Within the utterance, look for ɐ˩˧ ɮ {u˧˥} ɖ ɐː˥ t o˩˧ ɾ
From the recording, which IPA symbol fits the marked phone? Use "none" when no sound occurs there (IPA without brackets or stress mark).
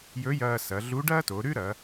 u˧˥